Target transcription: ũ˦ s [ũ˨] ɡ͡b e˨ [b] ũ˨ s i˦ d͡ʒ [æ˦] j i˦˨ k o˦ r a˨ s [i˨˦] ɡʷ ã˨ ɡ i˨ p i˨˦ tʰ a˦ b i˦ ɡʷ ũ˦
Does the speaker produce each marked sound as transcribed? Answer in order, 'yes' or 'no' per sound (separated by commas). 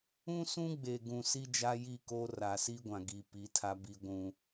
no, no, no, no